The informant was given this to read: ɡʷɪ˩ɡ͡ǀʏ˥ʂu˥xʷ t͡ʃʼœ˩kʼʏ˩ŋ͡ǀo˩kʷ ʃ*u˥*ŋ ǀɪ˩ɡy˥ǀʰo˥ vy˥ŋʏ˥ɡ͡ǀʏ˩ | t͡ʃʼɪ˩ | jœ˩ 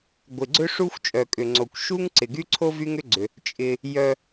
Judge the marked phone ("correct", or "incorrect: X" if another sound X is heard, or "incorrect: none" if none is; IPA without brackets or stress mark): correct